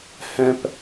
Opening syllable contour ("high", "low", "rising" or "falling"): low